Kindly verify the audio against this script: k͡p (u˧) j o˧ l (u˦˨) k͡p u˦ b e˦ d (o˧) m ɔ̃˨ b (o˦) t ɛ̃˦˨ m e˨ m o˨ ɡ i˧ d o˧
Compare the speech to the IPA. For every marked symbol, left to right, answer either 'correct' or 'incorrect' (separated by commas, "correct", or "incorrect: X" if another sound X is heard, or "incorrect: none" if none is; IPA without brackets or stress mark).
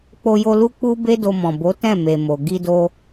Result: incorrect: o˧, incorrect: u˦, correct, incorrect: o˨˦